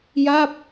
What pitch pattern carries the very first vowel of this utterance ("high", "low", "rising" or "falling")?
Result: falling